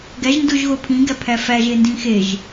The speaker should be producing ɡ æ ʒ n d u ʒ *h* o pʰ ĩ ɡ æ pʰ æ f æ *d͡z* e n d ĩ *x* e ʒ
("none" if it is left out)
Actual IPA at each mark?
ɣ, ʒ, x

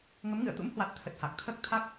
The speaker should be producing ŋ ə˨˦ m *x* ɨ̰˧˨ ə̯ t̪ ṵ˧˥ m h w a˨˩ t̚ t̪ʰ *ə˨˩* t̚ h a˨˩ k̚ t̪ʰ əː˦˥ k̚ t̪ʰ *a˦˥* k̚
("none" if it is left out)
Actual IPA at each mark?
ŋ, ə˨˩, a˦˥

